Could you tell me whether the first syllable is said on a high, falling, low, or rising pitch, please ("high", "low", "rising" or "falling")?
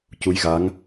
rising